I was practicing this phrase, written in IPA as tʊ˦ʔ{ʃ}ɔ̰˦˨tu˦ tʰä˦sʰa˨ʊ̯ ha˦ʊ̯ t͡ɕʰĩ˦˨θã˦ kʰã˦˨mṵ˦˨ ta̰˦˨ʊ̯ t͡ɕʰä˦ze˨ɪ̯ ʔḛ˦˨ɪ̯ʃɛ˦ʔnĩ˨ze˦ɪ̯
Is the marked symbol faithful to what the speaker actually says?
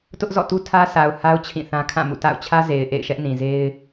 no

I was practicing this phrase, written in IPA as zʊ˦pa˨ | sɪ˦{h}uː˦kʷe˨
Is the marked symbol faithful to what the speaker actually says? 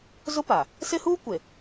yes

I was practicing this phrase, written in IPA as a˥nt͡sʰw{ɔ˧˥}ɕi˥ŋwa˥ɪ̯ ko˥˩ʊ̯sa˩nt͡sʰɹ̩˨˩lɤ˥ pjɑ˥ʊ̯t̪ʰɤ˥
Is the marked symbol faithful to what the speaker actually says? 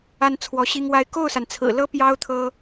yes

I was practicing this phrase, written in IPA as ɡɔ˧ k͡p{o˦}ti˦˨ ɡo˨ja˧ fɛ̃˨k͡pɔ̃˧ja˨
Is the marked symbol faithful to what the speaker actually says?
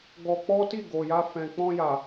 no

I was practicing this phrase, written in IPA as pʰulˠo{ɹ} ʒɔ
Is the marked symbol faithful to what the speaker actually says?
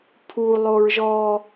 yes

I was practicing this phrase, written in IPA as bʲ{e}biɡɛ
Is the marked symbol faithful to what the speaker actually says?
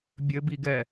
no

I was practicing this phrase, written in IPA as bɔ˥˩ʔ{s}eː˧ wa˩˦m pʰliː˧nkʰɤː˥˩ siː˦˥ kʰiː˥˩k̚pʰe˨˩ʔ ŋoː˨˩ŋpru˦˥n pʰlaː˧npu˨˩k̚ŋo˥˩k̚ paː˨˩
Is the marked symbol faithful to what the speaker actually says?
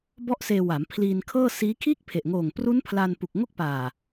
yes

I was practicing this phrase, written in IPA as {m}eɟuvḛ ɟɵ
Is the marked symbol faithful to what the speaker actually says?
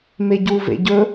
yes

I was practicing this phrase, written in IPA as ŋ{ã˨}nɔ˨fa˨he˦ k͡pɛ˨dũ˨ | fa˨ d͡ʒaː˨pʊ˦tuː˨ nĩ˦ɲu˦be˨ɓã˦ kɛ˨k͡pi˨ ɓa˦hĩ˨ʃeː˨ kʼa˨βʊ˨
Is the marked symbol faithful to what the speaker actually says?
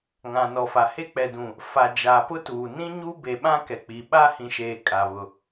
yes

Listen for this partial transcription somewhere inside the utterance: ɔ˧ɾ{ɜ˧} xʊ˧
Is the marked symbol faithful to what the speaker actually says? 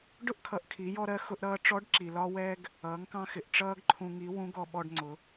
yes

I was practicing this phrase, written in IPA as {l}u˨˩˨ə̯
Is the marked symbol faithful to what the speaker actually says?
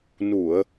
no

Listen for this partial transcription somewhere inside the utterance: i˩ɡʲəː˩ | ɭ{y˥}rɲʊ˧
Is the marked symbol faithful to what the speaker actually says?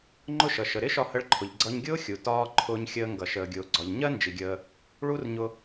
no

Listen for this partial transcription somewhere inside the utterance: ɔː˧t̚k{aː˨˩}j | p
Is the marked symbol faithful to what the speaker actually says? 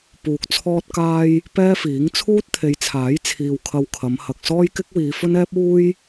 no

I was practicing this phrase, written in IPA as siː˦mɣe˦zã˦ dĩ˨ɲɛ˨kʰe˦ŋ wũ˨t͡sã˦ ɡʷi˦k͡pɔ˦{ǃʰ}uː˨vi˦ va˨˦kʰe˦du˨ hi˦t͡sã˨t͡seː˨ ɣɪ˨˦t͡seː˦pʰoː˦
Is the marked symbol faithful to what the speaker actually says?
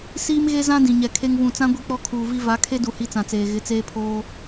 no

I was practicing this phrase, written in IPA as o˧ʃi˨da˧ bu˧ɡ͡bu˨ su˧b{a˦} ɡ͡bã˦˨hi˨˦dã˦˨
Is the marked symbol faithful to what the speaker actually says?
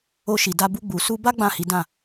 yes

